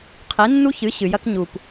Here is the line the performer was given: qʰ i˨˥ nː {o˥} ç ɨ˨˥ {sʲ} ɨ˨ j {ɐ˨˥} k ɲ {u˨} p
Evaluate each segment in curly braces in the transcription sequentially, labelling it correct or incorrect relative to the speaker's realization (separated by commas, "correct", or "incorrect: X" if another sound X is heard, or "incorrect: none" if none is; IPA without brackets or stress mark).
incorrect: u˥, incorrect: ɕ, incorrect: ɐ˥, correct